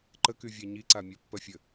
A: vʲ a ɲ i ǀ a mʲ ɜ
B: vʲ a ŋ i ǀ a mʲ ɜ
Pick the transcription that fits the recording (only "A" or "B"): A